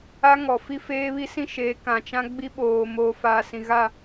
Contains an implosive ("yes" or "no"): yes